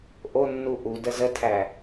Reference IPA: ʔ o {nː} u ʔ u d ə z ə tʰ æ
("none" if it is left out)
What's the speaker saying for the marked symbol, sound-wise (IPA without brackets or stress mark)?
nː